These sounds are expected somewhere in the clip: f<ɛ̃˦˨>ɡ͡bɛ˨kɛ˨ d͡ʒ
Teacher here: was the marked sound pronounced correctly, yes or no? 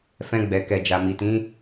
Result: no